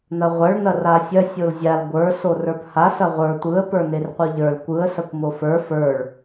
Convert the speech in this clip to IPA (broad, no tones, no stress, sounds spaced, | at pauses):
n̪ ɐ ʁʷ ɐ ɭ n̪ ɐ r a sʲ ɐ sʲ o l zʲ a l ɡʷ ə˞ s o r ə˞ p h a s ɐ ʁʷ ə˞ tʷ ɯ ə̯ p ə˞ n̪ e r qʷ ɯ ʎ ə˞ l kʷ ɯ ə̯ s ɐ kʷ m o f ə˞ f ə˞ ɭ